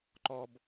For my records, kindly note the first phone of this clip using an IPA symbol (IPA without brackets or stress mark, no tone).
ǃ